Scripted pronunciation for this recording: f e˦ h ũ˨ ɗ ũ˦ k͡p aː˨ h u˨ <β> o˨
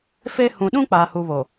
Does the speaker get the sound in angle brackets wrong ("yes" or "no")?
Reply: no